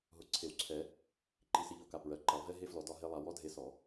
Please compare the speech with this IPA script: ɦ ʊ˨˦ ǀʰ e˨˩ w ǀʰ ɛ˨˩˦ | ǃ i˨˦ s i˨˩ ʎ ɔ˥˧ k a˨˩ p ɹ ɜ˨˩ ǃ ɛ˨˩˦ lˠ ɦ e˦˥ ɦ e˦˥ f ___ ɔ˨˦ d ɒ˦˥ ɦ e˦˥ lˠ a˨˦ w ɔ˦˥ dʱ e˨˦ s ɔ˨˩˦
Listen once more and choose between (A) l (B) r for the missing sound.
A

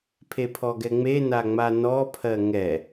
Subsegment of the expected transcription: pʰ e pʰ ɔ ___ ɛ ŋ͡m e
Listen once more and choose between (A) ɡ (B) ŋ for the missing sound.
A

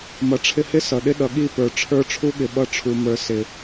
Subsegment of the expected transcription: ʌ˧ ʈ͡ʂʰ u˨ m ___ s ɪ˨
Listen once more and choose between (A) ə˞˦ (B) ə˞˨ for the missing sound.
B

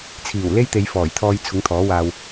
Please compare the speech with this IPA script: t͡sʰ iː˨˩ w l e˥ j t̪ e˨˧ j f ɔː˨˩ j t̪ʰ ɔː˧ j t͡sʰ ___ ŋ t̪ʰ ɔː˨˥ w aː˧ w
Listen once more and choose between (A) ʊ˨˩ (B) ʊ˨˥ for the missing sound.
B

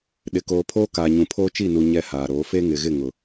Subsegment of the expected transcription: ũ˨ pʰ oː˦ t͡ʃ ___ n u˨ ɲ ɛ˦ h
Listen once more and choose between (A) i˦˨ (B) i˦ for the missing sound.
A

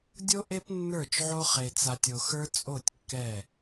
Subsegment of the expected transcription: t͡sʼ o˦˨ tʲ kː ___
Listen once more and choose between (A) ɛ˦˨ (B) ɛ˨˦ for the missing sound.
A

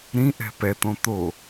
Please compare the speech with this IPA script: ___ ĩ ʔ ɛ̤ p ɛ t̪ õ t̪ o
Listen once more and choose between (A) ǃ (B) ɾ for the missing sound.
B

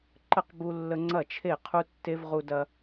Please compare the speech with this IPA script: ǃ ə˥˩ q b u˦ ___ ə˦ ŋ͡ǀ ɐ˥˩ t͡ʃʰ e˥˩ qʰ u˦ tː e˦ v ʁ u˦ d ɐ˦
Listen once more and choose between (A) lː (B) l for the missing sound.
A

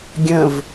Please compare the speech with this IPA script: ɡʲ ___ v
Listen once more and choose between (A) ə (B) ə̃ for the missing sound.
B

